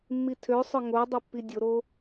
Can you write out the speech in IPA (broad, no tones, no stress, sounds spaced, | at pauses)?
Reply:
mː i tʰ ø sˤ œ ŋ o dˤ ɵ pː i dʲ o ɾ o